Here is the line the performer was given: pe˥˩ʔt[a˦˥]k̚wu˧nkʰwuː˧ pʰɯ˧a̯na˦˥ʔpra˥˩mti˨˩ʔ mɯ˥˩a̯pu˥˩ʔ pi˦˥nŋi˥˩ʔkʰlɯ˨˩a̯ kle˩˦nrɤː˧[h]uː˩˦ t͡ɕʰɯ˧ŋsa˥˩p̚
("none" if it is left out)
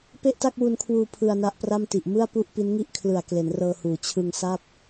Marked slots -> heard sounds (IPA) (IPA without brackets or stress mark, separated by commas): a˥˩, h